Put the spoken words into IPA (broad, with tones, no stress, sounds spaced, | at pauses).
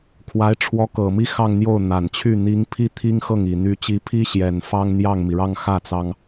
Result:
kʰ w a˧˥ ɪ̯ ʈ͡ʂʰ w ɔ˧˥ k ɤ˨˩ m i˥˧ x ɑ˥˧ ŋ n̪ j o˥˩ ʊ̯ n̪ a˨˩ n t͡ɕʰ y˥˩ n̪ i˧˥ ŋ pʰ i˥ t̪ʰ i˥ ŋ x ɤ˥˩ ŋ i˨˩ n̪ y˧˥ t͡ɕ i˧˥ pʰ i˥ ɕ j ɛ˨˩ n f ɑ˥ ŋ n̪ j ɑ˥˩ ŋ m i˩ ɻ ɑ˥˧ ŋ x ä˥˩ t͡s ɑ˩ ŋ